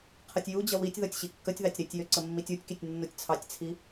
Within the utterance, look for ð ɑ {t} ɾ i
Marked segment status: incorrect: tʲ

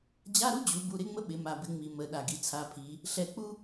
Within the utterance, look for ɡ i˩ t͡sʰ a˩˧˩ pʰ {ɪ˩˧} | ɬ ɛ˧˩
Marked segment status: incorrect: i˩˧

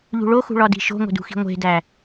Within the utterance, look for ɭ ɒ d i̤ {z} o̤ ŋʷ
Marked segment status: incorrect: ʃ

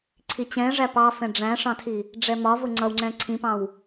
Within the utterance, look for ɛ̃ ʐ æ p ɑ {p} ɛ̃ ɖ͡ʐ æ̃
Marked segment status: incorrect: f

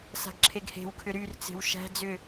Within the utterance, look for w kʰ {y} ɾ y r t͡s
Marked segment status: incorrect: ʏ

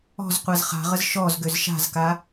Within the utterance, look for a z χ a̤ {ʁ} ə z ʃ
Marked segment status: correct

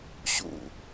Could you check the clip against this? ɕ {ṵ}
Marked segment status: correct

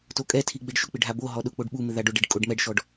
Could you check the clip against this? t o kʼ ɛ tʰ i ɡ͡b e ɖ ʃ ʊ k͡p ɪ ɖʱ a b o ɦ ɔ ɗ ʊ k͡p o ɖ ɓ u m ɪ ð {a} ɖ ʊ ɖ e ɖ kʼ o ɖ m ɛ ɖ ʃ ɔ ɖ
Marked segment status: correct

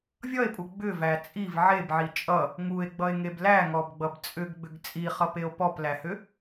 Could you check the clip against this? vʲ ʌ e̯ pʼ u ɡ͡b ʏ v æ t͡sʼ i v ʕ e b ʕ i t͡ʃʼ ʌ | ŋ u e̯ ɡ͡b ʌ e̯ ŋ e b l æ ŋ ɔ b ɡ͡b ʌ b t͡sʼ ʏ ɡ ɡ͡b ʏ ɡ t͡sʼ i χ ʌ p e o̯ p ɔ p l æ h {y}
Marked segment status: incorrect: ʏ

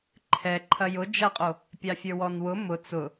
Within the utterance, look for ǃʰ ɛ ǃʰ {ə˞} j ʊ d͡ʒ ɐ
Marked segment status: incorrect: ɐ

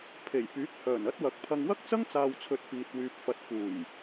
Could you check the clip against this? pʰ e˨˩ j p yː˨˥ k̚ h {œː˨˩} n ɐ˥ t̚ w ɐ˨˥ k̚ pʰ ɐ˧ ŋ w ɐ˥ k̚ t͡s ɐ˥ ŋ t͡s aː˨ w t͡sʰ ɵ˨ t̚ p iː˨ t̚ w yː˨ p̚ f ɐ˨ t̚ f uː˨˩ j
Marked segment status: correct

